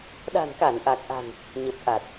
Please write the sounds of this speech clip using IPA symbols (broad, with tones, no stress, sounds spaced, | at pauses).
ɗ a̤˨˩ n k a˧˩ n ʔ a˨˩ k̚ ʔ a̤˨˩ n | ɲ ə˨˩ p̚ ʔ a˨˩ t̚